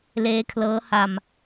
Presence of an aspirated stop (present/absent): present